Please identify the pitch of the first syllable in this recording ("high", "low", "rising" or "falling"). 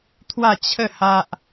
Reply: falling